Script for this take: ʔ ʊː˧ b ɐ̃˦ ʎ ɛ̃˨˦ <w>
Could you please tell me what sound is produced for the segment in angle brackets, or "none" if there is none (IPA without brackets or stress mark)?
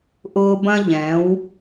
w